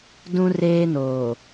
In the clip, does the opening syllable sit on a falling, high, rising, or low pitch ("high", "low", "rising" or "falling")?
high